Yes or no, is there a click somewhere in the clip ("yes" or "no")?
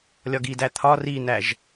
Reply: no